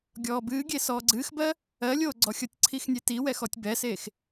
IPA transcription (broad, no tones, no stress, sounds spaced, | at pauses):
ɡʲ ɔː b ɨː ɡʲ e s ɔː ɡ͡ǀ ɨː x b ɜ | ɜ lʲ oː ɡ͡ǀ ɔ xʲ ɤ tʲ ǀʰ i x nʲ e t i w ɛ x ɔ tʲ b ɛ s eː x